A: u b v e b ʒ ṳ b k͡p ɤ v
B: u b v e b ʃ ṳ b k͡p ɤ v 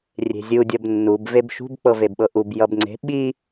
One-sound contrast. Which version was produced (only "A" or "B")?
B